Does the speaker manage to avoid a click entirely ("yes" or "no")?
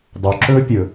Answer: no